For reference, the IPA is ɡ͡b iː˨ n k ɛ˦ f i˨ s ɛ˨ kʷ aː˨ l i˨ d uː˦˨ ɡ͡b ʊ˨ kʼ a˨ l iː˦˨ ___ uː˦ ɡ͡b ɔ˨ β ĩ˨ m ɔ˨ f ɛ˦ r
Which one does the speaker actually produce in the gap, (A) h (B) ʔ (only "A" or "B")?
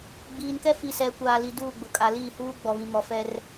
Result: A